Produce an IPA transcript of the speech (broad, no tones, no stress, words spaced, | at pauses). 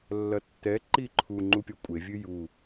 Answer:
lːɐtːɛ ǃiǃʰu ŋ͡ǃupʲɔkʷʼe vʲɨju